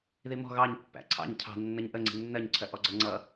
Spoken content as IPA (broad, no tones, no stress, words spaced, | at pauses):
ðimɔ̤ ɣɑɲ pːæ̰ǀʰɑ̰ɲ cʰɑ̤ nːʌɲʔə ŋ͡ǀi̤nːɜɲǀʰɜ ʔɔɡ͡ǀʌŋ͡ǀʌ